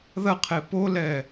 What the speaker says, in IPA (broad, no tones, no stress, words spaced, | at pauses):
ðɐqʰe polɛ